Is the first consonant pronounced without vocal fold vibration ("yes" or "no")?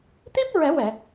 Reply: yes